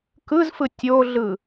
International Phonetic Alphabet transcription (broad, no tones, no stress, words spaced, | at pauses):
kɯzfɯ tʲoɮɯ